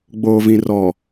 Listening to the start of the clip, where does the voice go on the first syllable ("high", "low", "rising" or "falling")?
low